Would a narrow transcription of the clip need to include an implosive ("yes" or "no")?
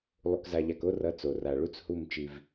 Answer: no